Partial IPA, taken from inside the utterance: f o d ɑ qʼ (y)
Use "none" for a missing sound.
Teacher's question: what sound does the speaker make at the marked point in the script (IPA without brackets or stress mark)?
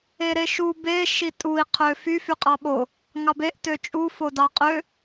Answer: ø